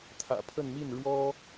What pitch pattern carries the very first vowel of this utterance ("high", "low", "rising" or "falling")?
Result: low